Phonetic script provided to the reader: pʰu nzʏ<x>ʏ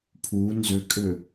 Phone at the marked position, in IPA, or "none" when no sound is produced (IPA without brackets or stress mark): kʼ